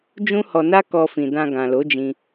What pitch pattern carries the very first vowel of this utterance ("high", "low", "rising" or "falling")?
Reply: high